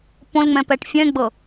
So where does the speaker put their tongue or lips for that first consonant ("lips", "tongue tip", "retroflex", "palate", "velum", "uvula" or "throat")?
lips